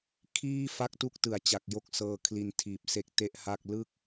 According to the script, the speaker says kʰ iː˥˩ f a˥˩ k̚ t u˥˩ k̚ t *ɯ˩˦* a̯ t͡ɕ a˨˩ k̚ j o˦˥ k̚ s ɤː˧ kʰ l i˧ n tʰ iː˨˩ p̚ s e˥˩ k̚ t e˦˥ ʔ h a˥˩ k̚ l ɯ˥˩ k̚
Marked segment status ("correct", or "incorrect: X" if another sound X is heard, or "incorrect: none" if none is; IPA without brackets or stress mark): correct